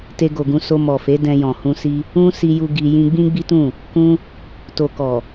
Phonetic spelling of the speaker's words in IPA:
te˧ɡo˨ɡũ˧ so˧mɔ˨fe˨˦ dɛ̃˧jɔ̃˨ hũ˧si˦ | ũ˦ si˧ju˧ ɡi˧ jĩ˧ɡ͡bĩ˦ɡ͡bi˦tũ˦˨ | kũ˧ | to˨kɔ˨

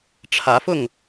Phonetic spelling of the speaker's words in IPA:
ʈ͡ʂʰä˨˦fʊ˥˨ŋ

